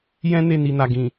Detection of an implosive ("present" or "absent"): absent